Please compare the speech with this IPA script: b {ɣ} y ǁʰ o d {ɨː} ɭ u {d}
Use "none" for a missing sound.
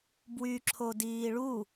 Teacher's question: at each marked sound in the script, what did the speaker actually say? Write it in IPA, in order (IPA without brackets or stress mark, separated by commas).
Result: w, iː, none